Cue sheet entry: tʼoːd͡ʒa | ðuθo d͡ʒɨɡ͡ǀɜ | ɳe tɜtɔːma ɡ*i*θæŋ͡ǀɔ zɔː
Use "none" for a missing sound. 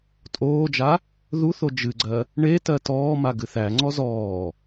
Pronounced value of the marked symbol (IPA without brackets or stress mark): ɨ